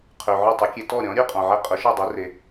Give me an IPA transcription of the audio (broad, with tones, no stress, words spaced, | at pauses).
qʰø˩ ʕʊ˥˩tˤʊ˩˥kʲe˧ tɔ˥˩ɾʲɔ̃˩˥ ɾʲø˥qʼɔ̃˩ʕɛ˧ qʼʊ˩˥ʃɔ˥˩dˤe˩˥re˩